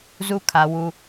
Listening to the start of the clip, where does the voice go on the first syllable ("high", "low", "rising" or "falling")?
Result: high